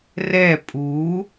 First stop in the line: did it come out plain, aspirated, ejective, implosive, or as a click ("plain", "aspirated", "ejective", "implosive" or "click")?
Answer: ejective